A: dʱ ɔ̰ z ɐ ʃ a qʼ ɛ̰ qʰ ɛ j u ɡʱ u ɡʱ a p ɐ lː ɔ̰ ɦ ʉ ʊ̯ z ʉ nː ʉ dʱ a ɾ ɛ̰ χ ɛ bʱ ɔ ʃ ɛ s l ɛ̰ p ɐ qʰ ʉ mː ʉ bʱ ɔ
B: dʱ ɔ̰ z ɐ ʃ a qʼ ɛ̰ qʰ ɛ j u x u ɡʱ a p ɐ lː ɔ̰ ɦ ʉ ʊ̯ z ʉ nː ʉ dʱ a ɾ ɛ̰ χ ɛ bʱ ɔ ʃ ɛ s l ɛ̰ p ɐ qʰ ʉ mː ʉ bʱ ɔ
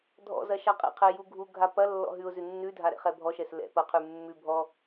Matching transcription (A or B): A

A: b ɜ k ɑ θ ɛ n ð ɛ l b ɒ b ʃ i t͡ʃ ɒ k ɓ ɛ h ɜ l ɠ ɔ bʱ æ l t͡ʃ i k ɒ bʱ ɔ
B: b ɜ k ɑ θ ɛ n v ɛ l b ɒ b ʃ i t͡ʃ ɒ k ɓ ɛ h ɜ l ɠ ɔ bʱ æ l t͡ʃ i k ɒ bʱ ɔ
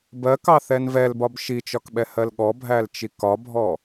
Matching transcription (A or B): B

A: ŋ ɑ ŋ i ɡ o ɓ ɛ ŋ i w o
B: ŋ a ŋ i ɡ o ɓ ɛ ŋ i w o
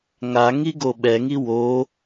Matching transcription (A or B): B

